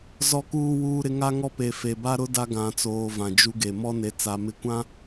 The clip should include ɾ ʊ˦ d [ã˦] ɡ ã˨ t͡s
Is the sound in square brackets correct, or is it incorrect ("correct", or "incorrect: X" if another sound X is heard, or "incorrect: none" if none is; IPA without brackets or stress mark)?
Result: incorrect: a˦